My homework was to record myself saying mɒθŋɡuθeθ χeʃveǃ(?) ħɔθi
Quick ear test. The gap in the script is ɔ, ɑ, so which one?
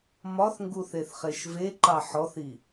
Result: ɑ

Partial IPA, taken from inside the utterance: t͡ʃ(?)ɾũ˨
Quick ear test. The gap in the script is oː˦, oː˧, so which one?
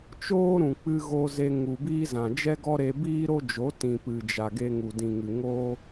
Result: oː˦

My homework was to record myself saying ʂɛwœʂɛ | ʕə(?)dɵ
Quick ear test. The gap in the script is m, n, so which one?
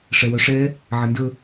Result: n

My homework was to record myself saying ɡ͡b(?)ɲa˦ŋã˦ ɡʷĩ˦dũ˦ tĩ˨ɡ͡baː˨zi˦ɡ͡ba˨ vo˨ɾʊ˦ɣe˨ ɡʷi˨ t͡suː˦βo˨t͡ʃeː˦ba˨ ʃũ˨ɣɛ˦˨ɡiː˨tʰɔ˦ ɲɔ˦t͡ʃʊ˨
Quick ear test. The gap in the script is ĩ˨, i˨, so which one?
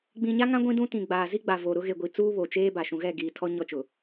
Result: ĩ˨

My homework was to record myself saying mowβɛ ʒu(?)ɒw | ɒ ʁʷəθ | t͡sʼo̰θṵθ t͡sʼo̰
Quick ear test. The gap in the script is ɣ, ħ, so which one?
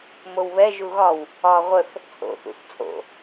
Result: ɣ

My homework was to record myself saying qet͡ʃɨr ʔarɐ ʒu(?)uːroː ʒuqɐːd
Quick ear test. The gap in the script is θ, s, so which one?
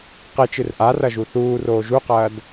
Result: θ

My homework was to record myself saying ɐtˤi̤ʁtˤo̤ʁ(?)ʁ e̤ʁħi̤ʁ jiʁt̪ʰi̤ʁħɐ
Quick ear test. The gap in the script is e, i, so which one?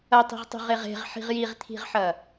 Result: e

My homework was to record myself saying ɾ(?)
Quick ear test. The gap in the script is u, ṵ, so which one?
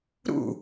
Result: ṵ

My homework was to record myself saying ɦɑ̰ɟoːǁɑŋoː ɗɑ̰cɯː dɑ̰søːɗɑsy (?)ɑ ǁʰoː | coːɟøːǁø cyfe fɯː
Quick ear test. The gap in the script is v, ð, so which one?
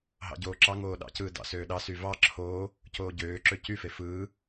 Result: v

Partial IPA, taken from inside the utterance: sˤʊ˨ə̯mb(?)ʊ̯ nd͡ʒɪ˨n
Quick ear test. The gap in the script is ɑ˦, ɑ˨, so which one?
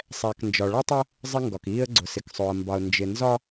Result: ɑ˨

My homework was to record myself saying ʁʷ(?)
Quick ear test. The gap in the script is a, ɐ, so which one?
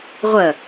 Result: ɐ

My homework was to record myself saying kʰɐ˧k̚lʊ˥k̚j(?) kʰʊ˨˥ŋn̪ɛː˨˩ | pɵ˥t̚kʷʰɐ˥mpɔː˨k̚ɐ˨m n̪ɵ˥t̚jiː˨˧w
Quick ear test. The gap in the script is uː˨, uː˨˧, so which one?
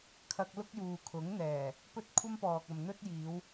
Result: uː˨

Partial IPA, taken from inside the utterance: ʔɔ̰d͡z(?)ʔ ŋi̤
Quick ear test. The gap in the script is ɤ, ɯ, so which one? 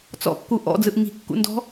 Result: ɯ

